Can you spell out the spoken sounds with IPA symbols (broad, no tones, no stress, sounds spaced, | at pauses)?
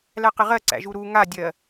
l æ q ɪ ʁ ɜ ǀ æ̰ ʒ u ɾ u ŋ a dʲ ɜ